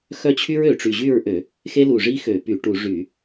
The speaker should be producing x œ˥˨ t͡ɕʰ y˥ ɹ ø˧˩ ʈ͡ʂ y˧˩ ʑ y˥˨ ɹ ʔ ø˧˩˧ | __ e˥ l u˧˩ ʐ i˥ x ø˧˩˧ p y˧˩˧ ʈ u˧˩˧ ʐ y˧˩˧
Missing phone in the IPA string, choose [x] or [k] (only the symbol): x